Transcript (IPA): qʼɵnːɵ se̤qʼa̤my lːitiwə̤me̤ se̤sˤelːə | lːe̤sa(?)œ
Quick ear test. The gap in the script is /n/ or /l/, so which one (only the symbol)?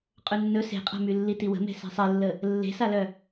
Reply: l